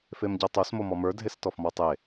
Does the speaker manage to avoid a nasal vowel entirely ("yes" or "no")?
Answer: yes